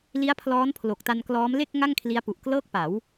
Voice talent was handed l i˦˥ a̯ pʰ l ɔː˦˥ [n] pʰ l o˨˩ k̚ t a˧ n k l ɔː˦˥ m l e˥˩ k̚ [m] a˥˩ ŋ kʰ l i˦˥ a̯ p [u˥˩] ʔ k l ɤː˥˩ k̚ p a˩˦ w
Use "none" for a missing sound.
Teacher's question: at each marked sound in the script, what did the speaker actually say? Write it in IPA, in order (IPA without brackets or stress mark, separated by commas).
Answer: n, ŋ, u˨˩